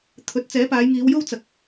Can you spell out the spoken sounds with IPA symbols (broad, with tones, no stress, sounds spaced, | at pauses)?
t̪ʰ ɵ˨˥ t̚ t͡s ɛː˨˥ p aː˨˧ j ŋ iː˨˧ w j o˥ w t͡s ɐ˨ k̚